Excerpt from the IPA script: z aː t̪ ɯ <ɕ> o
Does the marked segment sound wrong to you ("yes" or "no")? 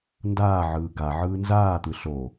yes